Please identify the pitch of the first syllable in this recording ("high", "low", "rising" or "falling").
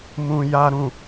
low